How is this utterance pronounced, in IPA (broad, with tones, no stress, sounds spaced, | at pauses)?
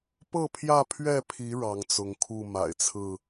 p ɤ˥˨ pʰ j ä˥˨ pʰ ɥ ɛ˥˨ pʰ i˨˦ ɻ ɑ˨˦ ŋ t͡s ʊ˨˦ ŋ kʰ u˥˨ m a̰˨˩ ɪ̯ t͡sʰ ɹ̩˥˨